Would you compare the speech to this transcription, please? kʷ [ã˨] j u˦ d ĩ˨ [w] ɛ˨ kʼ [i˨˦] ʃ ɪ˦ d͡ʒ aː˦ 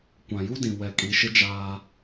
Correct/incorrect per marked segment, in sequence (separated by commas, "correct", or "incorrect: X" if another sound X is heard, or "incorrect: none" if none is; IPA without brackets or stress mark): correct, correct, correct